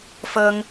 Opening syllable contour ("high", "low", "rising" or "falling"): high